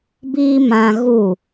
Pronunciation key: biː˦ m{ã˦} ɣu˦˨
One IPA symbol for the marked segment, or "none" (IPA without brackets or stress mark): ã˦